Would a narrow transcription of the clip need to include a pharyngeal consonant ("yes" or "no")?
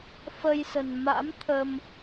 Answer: no